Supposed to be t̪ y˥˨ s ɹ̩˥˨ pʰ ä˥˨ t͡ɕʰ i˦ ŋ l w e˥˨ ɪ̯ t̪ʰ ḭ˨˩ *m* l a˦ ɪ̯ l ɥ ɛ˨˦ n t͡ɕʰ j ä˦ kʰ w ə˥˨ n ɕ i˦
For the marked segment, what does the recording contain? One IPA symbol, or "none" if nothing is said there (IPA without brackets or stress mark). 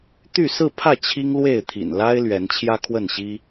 n